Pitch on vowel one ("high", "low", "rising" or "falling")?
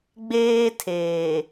high